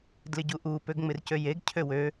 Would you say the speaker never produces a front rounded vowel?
no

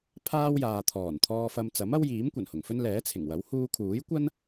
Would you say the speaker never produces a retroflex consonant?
yes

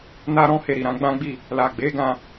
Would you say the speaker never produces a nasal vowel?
no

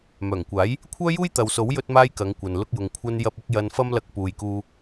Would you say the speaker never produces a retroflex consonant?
yes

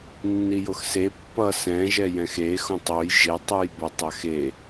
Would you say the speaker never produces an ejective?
yes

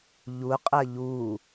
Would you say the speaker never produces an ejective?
no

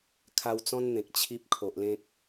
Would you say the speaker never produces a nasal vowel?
no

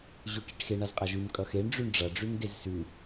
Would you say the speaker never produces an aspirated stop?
yes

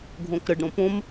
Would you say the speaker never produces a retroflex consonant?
no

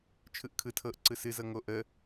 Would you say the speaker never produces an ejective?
yes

